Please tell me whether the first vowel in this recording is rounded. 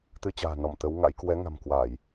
no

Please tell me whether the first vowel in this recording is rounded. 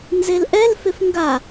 no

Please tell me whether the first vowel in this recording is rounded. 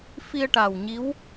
no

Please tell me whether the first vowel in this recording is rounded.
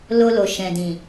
yes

